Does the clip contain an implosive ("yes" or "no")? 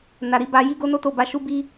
no